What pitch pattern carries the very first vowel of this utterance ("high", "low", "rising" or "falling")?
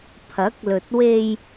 rising